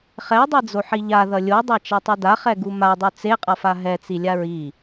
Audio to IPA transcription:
χ ɛ dˤ i d͡z o ħ i ʎ a ð ʌ lʲ o dˤ a t͡ʃ a tˤ i d a χ ɛ ɡ u m a dˤ u t͡s e qʼ ʌ f a ɦ ɛ t͡s i lʲ a ɹ i

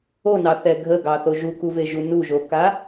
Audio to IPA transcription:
o n ɑ θ ɛ ɡʱ ə ɡ ɑ θ o ʒ u k u v e ʒ u n u ʒ o k a

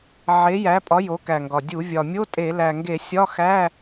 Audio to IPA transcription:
ʕ e˨˥ j æ˨˥ pʼ ɒ˨˥ j o˨˥ k æ˨˩ ŋ ɡ ɒ˨˩ dʲ u˧˩˧ vʲ ɒ˨˩ mʲ o˧˥˧ tʼ e˧˩˧ l æ˨˩ ŋ ɡ e˧˩˧ sʲ ɒ˧˥˧ x æ˧˥˧

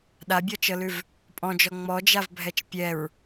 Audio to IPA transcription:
ɗ a bʲ ɔ t͡ʃ ɤ l ʉ v | pʼ ɔ̃ d͡ʒ ɔ ŋ͡m ɔ d͡ʒ a v bʱ ɛ t͡ʃ pʲ ɛ ɹ

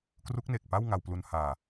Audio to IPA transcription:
k r u˦˥ k̚ n e˨˩ k̚ p a˥˩ w ŋ a˧ w p l u˧ n h aː˧

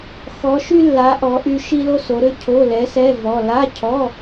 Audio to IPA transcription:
x ɔ˧˥ ʃ y˥ lː a˧˥ ʔ ɔ˧˥ ʔ y˥ ʃ i˥ l o˥ s o˧˥ ɾ ø˥ cʰ o˧˥˧ l ɛ˧˥ s ɛ˧˥˧ v ɔ˧˥˧ l a˧˥˧ cʰ ɔ˧˥˧

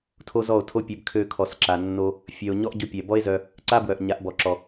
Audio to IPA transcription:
tʰ o˦ z ɔ˦˨ o̯ tʰ o˦ pʲ ø˧ b kʰ ø˧ kʰ ɔ˨ s ǁ a˨ nː o˧ | fʲ œ˨ o̯ ɲ ɔ˦ ʔ ɟ o˧ pʲ ɛ˨ b ɔ˦ e̯ z œ˧ | ǀ a˦ b w œ˨ ʔ ɲ a˨˦ ʔ b ɔ˨ ǁ ɔ˨

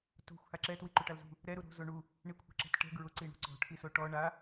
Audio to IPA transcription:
t o̤ xʷ h a ǁ ɛ t w i ǃ u ʈ a l z ṳ | ɾ ɛ ɾ u ɾ o̤ z o ɳ u | ɳ i kʷʰ ɛ̤ ǁ ɛ̤ t ʈ ɛ̤ ɡ ɹ ʊ ǀ i ɳ ṳ ǀ ɔ̤ ʈʰ i s o ʈ ɔ ɳ a

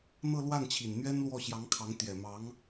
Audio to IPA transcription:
n̪ ɤ˥˧ l w a˥˩ n t͡ɕʰ i˨˩ n n̪ ɥ ɛ˥ n l w ɔ˥˩ ɕ j ɑ˧˥ ŋ kʰ ɑ˧˥ ŋ t̪ j ɛ˨˩ m ɑ˧˥ ŋ

